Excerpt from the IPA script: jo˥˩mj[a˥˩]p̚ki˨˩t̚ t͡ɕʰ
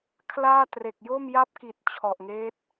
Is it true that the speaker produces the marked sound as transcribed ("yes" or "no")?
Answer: yes